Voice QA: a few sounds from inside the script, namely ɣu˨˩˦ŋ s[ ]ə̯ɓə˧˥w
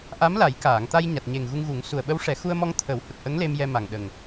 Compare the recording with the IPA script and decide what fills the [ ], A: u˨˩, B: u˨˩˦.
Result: A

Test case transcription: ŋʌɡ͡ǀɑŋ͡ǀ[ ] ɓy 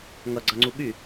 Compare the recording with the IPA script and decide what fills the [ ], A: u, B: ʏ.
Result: A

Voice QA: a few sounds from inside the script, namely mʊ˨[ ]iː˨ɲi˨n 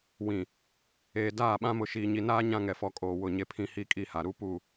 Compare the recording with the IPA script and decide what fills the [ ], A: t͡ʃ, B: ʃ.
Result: B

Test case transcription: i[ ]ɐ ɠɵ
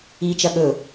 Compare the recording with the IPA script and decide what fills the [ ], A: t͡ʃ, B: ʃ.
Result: A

